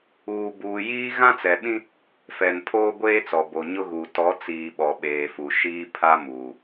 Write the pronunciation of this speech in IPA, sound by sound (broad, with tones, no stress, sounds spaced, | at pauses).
uː˨ b uː˨ j iː˦ ɣ ã˦ t͡s ɛ˨ ɓ ĩ˦ | f ɛ˨ n pʰ oː˦ ɡʷ eː˦ t͡s ɔ˨ b o˨ ɲ ʊ˦ ɣ uː˨ t ɔ˨˦ t͡s iː˨ ɓ ɔ˨ ɓ eː˨ f u˨ ʃ iː˦ pʰ a˦ m uː˨